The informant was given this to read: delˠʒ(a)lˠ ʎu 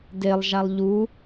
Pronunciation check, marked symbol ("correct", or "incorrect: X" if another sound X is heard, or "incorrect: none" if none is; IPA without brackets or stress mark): correct